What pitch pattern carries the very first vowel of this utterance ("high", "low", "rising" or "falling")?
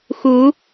rising